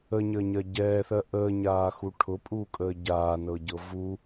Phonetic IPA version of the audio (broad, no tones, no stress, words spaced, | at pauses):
əɲəːɲɜ ɟɛːθɜ ʔəːɲaːxu ʈʰʊpʼuːkʼəː ɟaːnɤɟɤ vu